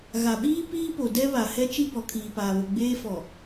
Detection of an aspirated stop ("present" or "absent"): present